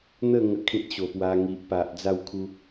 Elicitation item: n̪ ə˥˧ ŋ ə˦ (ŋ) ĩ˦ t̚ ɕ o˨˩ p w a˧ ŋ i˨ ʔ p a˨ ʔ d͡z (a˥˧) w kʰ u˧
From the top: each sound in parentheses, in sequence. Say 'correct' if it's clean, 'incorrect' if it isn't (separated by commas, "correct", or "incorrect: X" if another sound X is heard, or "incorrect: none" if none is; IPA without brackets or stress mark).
incorrect: kʰ, correct